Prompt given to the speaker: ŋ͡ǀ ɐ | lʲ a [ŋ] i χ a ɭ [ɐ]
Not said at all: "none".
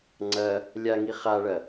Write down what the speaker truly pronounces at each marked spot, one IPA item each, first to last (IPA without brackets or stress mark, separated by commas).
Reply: ŋ, ɐ